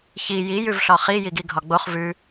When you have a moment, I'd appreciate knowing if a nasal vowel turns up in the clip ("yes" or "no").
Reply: no